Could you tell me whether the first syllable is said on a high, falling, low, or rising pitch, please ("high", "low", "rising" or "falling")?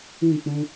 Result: falling